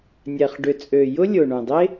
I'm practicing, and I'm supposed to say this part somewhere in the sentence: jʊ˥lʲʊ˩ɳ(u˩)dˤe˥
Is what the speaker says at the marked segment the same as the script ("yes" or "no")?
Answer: no